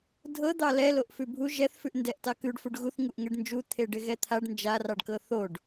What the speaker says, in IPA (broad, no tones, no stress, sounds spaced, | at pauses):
dʱ ɤ d̪ ɑ l ɛ l o ʔ f ʉ bʱ u ʒ ɛ θ f ʉ ʔ n d ɛ ʔ t ɑ k ʉ ɖ f u ɖ ɣ u θ ŋ u ʔ ŋ ɛ ɖ n d͡ʒ u t̪ʰ e ɖ ɪ ɣ ɛ t̪ʰ a ɖ n d͡ʒ a r ɑ ɖ k ɤ θ o ɖ